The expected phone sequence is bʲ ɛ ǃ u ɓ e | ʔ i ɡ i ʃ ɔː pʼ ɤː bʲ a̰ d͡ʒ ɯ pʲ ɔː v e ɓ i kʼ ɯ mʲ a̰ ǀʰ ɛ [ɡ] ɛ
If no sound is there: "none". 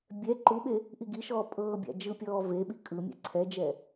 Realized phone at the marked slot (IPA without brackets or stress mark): d͡ʒ